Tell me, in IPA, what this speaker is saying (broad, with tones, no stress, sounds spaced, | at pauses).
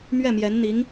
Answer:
m ɥ ɛ˥˩ m j ɛ˧˥ n n̪ i˧˥ ŋ